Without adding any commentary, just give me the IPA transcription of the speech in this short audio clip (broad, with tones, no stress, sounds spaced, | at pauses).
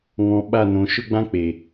ŋ ɔ̃˨ ɓ a˦˨ n õ˨ ʃ ʊ˦ ɡ͡b ã˦ k͡p e˨